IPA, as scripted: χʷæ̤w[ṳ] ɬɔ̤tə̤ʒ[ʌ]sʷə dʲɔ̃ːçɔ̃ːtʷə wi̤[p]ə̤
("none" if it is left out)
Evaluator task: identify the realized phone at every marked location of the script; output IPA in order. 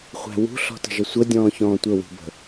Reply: ṳ, ʌ, b

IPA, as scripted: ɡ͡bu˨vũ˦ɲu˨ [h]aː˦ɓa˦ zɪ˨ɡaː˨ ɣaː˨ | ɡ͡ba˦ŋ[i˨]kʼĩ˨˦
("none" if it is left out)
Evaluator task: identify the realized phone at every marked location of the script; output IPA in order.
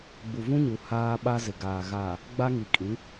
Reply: h, i˨

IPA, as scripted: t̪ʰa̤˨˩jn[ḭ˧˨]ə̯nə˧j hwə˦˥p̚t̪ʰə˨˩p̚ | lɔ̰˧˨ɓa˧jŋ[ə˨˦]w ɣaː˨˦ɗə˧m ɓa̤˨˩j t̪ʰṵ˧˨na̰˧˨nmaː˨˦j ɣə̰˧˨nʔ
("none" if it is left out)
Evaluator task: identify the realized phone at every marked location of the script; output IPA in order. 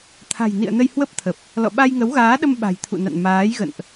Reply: ḭ˧˨, ə˨˦

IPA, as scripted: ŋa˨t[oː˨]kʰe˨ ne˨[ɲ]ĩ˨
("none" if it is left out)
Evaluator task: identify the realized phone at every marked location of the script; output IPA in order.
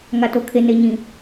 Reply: o˨, ɲ

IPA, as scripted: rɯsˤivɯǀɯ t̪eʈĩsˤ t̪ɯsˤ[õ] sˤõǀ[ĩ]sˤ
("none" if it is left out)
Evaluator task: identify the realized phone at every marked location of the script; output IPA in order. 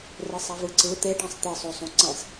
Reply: o, ẽ

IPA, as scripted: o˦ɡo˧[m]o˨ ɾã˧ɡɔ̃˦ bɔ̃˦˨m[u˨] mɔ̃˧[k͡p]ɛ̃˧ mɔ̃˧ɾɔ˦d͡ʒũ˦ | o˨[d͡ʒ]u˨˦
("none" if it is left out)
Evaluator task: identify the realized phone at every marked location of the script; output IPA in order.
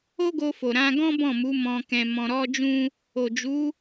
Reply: f, u˨˦, k, d͡ʒ

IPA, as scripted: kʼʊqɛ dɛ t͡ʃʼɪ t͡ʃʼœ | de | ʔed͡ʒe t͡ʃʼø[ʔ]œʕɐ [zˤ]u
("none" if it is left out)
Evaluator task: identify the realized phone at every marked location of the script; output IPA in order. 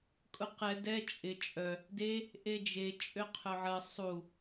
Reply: qʰ, sˤ

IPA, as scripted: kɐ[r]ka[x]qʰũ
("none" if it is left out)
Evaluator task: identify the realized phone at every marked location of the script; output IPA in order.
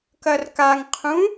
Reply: r, ŋ

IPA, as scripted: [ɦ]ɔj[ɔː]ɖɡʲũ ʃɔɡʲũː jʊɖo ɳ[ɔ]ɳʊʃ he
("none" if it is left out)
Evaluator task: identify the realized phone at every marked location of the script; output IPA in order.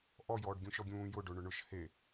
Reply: ʔ, ɔː, ʊ

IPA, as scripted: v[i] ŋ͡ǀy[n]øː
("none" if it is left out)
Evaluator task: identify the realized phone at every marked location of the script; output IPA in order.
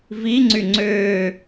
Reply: i, ŋ͡ǀ

